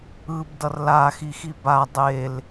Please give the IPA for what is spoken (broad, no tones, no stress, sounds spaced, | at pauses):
ɯ b d ʌ r l a x i x i b a dˤ e l